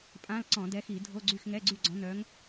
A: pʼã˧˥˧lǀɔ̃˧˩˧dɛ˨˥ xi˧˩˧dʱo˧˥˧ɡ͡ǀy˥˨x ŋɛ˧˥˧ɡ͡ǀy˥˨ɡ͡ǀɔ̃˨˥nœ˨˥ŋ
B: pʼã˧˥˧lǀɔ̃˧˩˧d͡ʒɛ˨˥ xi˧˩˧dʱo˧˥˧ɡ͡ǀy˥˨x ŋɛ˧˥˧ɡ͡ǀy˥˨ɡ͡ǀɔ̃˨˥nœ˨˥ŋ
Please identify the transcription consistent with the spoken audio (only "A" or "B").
A